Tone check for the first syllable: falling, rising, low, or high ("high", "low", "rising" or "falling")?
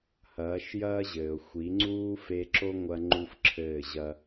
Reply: rising